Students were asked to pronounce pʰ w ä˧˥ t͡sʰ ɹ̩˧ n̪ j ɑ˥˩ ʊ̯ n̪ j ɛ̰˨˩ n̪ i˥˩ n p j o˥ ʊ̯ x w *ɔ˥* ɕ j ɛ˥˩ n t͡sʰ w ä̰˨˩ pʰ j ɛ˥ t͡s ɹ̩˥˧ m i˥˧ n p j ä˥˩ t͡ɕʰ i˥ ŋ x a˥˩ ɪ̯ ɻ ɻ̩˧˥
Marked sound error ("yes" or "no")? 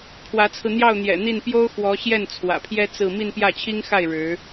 yes